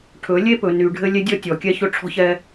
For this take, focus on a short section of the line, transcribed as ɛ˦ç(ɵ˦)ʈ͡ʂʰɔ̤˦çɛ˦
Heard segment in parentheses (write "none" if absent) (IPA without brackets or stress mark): ɵ˦